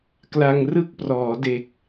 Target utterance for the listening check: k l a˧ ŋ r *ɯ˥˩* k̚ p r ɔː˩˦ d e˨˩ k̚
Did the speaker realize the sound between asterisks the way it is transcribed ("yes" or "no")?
yes